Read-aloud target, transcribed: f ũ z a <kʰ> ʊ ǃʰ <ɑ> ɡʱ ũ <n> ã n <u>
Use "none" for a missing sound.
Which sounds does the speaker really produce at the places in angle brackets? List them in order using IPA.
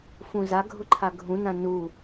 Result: ɡʱ, a, n, u

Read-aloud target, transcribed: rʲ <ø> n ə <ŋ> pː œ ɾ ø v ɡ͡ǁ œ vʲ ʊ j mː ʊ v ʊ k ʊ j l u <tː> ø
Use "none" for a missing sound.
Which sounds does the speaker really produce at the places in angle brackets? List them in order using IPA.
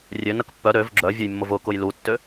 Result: ø, k, tː

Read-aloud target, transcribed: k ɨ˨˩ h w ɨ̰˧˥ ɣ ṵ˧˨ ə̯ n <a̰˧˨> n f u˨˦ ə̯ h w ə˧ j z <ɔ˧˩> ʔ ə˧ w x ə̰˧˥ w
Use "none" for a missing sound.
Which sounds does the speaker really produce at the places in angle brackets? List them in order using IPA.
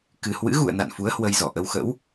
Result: a̰˧˨, ɔ˧˩

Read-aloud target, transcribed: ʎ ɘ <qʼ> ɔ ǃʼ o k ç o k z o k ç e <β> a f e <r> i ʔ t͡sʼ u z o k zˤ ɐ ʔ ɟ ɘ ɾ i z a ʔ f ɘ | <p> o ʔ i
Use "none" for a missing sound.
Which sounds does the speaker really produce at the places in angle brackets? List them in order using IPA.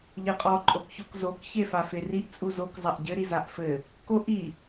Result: qʼ, f, r, k

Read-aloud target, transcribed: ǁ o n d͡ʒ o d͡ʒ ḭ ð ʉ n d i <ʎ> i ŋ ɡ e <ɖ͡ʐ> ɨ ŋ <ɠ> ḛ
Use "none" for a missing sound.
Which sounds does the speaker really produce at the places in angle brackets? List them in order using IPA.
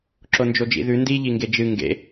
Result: ʎ, d͡ʒ, ɡ

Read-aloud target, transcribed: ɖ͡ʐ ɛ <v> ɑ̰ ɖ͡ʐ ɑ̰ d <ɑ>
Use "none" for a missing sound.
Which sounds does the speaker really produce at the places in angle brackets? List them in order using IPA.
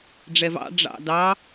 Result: v, ɑ

